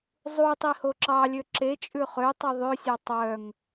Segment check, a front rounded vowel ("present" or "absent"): present